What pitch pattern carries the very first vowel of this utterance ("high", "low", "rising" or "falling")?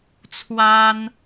high